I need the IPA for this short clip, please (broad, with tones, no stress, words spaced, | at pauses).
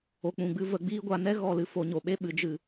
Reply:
o˨k͡pũ˨ ɡ͡bɨ˦˨və˦˨ɡ͡biː˦ ɡʷa˧nɛ˦ɣɔ˦˨ lɨ˧fo˨˦ɲo˨ɓe˦ ɓɨ˨d͡ʒɨ˨